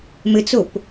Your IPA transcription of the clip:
m ɘ t͡s o p

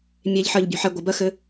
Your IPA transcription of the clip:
mʲ e ʎ ħ ɜ ʎ bʲ ɔ̤ ħ ɛ ɡʷ ə b ɜ x ɘ

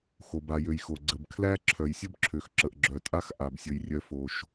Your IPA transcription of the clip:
x o˨ b a˨ j ø˨ j x o˨ ɡ͡ǀ ə˨ b kʰ l æ˦ ǁʰ œ˨ j sʲ ə˦ b ǁʰ ø˨ x ǁ ə˨ ʔ ɡ͡ǁ œ˨ tʼ a˦ x ʔ a˨ b sʲ ə˨ j rʲ œ˦ f o˦ ʃ

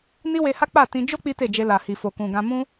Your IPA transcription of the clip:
n i˦ w e˧ h a˦ k͡p a˦˨ t ĩ˧ d͡ʒ o˦ k͡p i˦ t e˦˨ d͡ʒ e˧ l a˨ h i˨ f o˨ k ũ˨ ɡ ã˧ m ũ˦

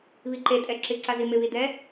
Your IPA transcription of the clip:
β i ǃ e tʼ ɛ ǁ ɪ ǀ a z i m ɪ β i d ɛ

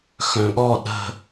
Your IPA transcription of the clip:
x œ̃ ɠ ɔ ɗ ə̤

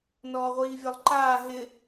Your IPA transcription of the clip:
n ɔː ʁʷ iː vʲ ɔ lˠ ǃ aː ɦ ɪ

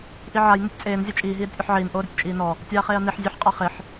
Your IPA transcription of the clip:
ʔ i ʕ a j n ɪ tʲ t͡sʼ eː n zʲ ɛ t͡ʃʼ iː ɦ iː ɾ ɪ tʲ ʔ ɔ ħ ʕ iː n ʔ oː ɾ ɪ tʲ t͡ʃʼ iː n ɔ | tʲ aː χ eː ɐ̯ n i ħ zʲ e ħ qʼ a χ ɪ ħ

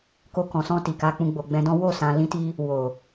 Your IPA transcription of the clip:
k o˧ k ɔ̃˨ s ɔ̃˧ t i˨ k a˧ k͡p ũ˧ ɡ͡b o˨ ɡ͡b ɛ̃˧ d ɔ̃˦ w o˦˨ s ã˧ l ĩ˦ t i˦ | w o˨

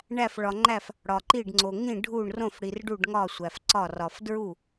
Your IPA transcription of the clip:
ɳ æ˧˩ f ɭ ɒ˩ ŋ͡ǃ æ˧˩ f | ɽ ɒ˩ ǃ i˧˩ ɖ ŋ͡ǀ o˩ ŋ ĩ˧˩ ɖʱ u˧˩ ɳ r õ˧˩ f ɽ i˩ r ɖ u˧˩ ɖ ŋ ɒ˧˩ sʷ æ˩ f ǀ ɒ˧˩ r ɒ˩ f d ɹ u˧˩

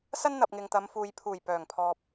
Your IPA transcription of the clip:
s ɐ˥ n n̪ ɐ˨ p̚ ŋ ɪ˨ ŋ t̪ ɐ˨˧ m f uː˨ j pʰ uː˨˩ j p œː˨˩ ŋ pʰ ɔː˨ p̚

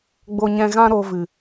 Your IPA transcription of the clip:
ɡ͡b o˧ ɲ ɛ̃˧ ɣ ã˦ ɾ o˧ v ɨ˨

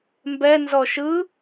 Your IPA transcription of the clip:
m b ɛ n z ɔ ʃ ɯ

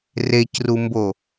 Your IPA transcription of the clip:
r e c r u m b o

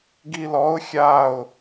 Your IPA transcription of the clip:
ɡ i l ɔ ʊ̯ xʲ a ʊ̯

